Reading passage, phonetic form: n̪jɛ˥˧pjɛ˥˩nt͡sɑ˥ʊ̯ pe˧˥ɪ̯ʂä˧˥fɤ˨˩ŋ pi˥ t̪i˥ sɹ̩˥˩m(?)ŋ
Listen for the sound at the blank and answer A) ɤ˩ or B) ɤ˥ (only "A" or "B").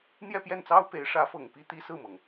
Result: A